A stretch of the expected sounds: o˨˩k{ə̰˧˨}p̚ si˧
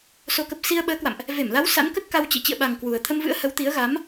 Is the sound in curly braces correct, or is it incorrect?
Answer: incorrect: ə˨˩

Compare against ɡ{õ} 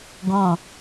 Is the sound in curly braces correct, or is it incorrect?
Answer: correct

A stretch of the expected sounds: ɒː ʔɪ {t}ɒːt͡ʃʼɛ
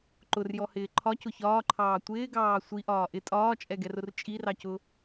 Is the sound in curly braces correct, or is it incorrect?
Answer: incorrect: tʼ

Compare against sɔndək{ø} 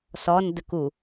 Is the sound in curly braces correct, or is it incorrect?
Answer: incorrect: u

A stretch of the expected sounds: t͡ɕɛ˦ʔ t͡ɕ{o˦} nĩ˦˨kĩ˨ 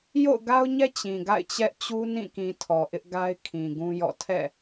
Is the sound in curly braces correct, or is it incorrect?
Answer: incorrect: u˦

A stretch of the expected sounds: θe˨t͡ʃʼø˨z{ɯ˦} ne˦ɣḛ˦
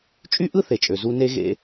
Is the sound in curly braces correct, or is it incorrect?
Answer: incorrect: u˦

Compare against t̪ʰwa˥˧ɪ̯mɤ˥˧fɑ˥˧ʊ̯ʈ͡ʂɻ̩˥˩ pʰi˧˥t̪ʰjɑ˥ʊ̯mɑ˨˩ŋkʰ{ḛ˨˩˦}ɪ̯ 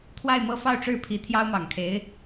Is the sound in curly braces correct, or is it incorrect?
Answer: incorrect: e˧˥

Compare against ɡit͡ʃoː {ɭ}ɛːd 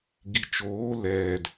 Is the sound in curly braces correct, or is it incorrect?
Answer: incorrect: l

